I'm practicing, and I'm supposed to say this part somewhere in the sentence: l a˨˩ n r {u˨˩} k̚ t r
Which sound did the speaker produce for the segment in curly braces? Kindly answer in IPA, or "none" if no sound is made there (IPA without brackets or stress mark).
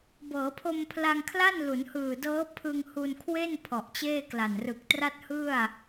ɯ˨˩